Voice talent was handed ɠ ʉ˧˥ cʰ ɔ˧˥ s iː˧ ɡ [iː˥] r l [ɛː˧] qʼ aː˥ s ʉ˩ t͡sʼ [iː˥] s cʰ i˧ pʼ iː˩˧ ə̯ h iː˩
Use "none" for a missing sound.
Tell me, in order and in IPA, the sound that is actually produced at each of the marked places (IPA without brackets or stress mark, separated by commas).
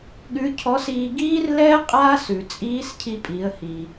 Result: iː˥, ɛː˥, iː˧˥